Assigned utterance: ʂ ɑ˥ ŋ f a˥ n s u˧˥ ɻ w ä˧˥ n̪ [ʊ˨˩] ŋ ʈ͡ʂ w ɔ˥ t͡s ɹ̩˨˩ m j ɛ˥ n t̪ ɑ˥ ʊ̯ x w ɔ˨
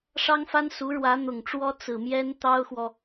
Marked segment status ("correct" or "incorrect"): correct